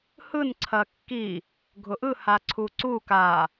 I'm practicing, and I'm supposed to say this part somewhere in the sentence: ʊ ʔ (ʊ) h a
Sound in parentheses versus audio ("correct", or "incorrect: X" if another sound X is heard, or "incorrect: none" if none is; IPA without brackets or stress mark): incorrect: ɯ